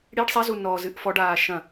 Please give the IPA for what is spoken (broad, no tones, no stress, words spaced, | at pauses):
ɽiɖ sˤɛzu nɔzɨʔ fɔɖaː ʃɐ̃